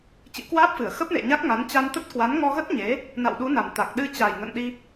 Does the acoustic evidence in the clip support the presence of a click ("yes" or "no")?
no